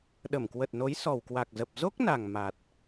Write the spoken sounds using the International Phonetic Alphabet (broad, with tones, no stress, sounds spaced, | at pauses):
ɗ ə˧˩ m k w ə˨˩ t̚ n o˨˦ j s ɔ˨˩ w k w a˨˩ k̚ z ə˨˩ p̚ z o˦˥ k̚ n a˨˩ ŋ m a˨˩ t̚